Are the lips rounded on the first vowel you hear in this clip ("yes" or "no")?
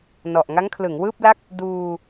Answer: yes